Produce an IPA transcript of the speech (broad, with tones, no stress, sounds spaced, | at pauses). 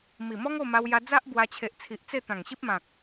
m i˨˩ m ɔ˦ ŋ o˥˧ m a˧ w j a˧ d͡z a˦ ʔ b w a˧ t͡ɕʰ e˨ ʔ t͡sʰ i˨ ʔ t͡s e˥˧ t̪ ã˨˩ ŋ ɕ i˦ p̚ m ã˨ k̚